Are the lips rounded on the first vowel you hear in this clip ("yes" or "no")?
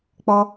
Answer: yes